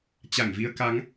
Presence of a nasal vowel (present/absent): absent